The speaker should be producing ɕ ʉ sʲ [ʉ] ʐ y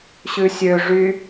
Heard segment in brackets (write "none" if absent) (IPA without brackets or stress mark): ø